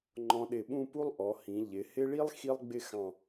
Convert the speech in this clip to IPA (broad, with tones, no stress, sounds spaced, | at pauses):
ŋ͡ǃ ɔ̃˧ ɗ ɪ˧˩ ɓ ũ˥˧ p u˥ lˠ ʔ ɔ˩˧ h ĩ˩˧ ʎ ɪ˩˧ h ɪ˥ ɭ i˥ lˠ x i˥ lˠ ɡ͡b ɪ˥˧ x ɑ̃˧˩